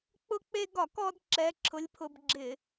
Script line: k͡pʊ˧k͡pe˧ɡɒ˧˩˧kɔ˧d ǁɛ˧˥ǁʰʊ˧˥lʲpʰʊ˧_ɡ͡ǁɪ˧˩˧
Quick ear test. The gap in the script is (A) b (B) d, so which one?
A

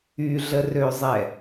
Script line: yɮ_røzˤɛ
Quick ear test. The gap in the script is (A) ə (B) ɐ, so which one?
A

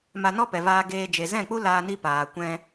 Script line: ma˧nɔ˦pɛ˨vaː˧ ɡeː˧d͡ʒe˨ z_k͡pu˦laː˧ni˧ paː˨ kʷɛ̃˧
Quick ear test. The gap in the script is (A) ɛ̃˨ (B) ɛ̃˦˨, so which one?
B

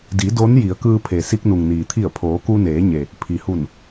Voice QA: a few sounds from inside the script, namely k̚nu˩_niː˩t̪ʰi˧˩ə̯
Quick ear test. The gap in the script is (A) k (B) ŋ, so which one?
B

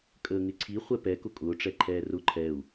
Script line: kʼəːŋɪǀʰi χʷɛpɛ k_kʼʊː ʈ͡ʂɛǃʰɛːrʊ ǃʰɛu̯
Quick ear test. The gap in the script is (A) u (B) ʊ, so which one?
B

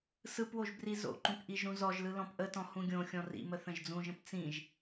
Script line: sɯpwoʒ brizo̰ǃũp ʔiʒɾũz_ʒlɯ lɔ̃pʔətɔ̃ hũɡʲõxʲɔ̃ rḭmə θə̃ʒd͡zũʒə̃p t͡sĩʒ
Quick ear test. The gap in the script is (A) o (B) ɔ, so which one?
B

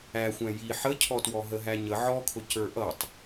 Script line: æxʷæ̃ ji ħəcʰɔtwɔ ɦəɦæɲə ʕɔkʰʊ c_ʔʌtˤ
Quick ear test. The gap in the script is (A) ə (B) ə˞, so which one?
B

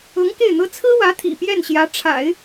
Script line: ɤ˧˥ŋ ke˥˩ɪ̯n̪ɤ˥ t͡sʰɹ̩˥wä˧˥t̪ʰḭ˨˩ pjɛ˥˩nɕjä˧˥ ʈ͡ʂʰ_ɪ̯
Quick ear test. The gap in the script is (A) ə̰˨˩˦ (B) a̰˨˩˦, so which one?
B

